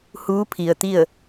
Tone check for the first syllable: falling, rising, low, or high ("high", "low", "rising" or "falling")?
rising